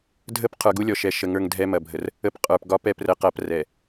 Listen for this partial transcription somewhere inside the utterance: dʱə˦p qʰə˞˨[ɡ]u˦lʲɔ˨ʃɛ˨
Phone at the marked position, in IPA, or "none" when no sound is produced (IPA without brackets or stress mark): ɡ